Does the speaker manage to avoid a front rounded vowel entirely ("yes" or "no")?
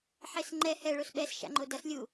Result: yes